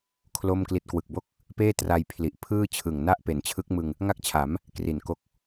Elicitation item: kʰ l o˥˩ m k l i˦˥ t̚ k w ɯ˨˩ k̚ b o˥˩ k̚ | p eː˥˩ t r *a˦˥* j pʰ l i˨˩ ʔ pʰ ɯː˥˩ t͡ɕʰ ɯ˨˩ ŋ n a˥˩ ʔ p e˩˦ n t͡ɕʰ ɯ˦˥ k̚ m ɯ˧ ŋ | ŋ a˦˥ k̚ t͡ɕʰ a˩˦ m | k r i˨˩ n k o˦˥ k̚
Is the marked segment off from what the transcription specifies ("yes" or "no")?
yes